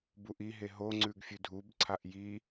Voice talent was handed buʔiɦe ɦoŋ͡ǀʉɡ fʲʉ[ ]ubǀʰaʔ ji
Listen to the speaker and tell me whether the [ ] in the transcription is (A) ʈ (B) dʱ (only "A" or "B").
B